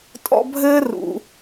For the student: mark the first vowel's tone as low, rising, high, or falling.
high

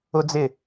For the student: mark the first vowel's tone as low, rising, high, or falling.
high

